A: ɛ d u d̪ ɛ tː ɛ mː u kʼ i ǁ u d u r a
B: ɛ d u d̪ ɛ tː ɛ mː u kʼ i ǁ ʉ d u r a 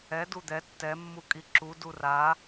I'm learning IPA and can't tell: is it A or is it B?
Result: A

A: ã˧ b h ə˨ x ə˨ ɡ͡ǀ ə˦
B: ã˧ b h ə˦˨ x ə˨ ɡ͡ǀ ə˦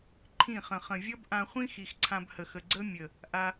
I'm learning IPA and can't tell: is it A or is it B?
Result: A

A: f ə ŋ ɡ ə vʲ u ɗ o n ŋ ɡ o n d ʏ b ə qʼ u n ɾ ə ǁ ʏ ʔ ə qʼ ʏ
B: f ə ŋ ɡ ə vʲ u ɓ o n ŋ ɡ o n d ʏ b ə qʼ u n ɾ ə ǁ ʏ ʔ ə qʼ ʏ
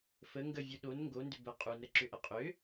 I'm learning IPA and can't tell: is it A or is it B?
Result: A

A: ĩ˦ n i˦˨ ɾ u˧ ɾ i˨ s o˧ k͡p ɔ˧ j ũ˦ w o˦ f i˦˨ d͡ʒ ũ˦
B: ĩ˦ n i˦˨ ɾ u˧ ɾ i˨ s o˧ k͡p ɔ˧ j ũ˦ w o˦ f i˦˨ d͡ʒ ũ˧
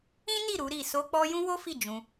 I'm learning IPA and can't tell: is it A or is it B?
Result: B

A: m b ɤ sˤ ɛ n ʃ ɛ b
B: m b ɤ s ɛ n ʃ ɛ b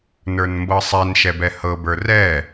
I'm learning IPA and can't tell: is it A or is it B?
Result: A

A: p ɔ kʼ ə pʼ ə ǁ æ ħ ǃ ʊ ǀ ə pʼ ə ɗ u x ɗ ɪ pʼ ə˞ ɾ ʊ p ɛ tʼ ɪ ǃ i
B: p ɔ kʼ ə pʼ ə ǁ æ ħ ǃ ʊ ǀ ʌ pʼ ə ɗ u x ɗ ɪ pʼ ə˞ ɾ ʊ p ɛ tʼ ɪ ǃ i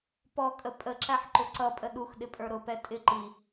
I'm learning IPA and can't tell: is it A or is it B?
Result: B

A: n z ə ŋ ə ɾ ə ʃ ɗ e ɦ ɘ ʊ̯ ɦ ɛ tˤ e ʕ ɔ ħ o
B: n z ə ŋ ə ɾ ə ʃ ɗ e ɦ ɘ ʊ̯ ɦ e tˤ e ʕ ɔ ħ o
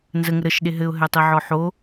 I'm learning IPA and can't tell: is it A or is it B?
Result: A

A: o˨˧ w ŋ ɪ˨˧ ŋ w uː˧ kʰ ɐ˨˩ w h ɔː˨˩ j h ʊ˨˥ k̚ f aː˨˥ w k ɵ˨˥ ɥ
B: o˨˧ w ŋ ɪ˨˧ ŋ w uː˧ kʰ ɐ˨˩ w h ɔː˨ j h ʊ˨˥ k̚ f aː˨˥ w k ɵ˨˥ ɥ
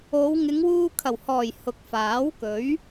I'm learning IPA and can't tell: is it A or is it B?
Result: A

